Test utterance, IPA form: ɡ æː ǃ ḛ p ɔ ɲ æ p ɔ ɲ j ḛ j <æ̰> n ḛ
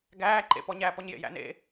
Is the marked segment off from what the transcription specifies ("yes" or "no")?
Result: no